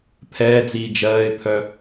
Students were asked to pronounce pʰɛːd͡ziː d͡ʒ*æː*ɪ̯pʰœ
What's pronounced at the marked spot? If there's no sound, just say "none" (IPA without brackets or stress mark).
ɜː